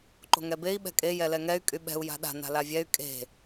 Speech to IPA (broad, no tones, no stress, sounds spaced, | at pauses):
ǃ o̤ ŋ ɛ b e i̯ ɓ ɛ̤ kʼ e j ɛ l ɛ ŋ ɛ y̯ kʼ y ɓ ɛ̤ u̯ j a̤ ɗ a̤ n a̤ l a vʲ ɛ y̯ kʼ e̤